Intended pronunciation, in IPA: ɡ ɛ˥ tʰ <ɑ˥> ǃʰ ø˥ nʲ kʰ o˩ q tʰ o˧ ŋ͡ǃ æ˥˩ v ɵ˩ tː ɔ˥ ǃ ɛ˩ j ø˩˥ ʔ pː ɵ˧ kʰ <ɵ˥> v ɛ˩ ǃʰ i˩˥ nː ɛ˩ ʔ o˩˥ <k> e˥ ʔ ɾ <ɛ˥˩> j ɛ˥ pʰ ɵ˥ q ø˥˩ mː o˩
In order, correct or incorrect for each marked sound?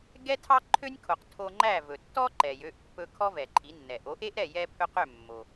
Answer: correct, incorrect: ɔ˥, incorrect: ʔ, correct

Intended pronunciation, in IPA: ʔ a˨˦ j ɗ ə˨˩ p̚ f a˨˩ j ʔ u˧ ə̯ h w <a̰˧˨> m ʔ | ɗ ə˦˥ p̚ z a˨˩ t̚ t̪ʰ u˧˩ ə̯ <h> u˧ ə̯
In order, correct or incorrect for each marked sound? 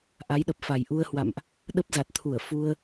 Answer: correct, incorrect: f

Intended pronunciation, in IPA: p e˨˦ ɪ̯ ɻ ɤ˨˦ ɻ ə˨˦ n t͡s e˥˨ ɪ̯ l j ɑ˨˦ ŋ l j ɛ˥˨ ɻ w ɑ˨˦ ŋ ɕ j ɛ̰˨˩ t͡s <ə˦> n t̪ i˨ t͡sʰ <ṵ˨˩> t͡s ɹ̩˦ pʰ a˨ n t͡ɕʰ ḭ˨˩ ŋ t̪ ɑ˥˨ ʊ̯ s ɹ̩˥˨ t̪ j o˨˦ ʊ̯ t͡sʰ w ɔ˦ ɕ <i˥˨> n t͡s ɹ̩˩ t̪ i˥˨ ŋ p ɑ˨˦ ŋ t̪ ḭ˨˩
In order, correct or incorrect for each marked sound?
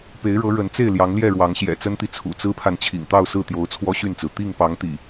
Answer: correct, correct, incorrect: y˥˨

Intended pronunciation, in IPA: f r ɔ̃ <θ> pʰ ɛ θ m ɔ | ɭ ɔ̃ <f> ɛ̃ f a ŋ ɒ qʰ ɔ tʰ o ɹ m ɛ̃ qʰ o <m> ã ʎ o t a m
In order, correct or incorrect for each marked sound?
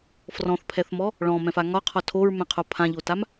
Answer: correct, incorrect: m, incorrect: pʰ

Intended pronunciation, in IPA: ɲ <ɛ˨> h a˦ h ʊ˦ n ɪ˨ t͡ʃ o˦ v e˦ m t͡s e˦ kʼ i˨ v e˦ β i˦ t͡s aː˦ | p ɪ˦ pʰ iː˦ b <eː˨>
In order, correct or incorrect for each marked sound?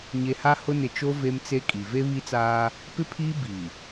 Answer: incorrect: e˨, incorrect: iː˨

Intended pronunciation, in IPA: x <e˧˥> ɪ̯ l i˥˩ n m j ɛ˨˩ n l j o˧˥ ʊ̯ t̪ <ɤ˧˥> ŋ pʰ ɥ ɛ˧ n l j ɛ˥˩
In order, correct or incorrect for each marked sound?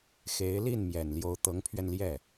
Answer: correct, correct

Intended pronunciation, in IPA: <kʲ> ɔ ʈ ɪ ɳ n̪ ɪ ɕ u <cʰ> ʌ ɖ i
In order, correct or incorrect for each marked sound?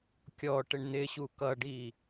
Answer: correct, incorrect: k

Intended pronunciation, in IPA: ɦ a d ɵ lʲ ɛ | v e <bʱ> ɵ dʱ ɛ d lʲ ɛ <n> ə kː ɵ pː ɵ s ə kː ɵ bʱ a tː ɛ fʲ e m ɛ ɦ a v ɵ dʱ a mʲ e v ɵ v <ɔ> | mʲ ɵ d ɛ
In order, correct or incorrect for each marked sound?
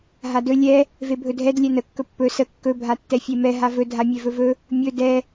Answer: correct, correct, incorrect: ɵ

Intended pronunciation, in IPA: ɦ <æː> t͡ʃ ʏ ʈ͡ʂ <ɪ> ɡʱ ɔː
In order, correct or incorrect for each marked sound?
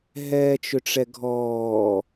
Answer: incorrect: ɛː, incorrect: ɛ

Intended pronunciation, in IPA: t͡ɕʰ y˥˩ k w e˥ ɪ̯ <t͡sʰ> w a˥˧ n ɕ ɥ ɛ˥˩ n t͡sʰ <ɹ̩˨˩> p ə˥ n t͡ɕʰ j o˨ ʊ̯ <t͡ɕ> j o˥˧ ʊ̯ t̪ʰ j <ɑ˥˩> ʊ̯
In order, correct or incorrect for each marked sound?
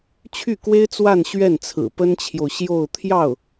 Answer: incorrect: t͡s, correct, incorrect: ɕ, correct

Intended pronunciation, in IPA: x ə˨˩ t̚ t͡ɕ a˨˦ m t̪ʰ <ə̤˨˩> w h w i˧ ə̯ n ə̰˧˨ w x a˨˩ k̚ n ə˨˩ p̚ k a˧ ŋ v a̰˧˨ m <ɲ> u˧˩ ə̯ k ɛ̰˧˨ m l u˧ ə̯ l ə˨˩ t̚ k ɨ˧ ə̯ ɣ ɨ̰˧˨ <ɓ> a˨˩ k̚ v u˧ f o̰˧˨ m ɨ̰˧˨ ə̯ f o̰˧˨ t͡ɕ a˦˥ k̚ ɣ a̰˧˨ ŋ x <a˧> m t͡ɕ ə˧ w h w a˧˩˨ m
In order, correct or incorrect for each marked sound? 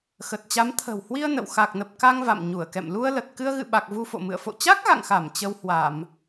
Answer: correct, correct, correct, incorrect: a˧˩

